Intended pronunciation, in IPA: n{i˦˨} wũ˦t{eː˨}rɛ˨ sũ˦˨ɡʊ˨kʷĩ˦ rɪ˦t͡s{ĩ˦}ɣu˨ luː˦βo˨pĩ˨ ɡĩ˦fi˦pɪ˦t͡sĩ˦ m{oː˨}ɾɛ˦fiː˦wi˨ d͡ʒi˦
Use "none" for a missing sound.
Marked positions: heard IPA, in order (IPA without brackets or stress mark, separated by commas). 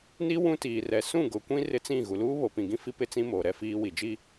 i˦, iː˨, ĩ˦˨, oː˨